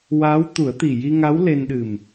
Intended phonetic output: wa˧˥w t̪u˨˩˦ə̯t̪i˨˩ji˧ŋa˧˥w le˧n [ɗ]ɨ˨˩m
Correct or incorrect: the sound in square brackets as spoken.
correct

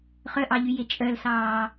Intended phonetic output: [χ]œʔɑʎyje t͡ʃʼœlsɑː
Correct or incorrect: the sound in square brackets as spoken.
correct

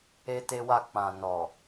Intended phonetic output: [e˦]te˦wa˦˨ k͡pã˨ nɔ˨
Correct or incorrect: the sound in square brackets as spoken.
correct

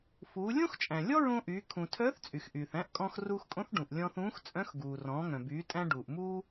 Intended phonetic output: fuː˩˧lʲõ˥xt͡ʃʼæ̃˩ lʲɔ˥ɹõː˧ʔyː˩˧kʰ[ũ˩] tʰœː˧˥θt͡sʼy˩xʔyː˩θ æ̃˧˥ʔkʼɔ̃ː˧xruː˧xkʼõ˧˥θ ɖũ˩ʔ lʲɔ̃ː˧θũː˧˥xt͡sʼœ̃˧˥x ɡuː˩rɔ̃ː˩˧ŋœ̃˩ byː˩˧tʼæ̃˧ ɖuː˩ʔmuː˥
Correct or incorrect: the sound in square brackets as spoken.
correct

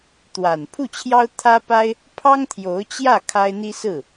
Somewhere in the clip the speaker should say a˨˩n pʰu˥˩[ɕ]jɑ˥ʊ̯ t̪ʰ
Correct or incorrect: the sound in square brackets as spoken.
incorrect: t͡ɕʰ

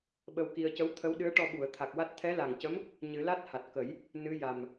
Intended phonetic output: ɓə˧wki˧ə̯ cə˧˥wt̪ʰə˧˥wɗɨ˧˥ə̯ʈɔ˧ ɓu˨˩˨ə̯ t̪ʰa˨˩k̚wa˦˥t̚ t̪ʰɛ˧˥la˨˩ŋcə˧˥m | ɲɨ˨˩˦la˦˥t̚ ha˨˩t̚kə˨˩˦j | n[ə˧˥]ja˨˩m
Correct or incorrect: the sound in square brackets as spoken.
incorrect: ɨ˧˥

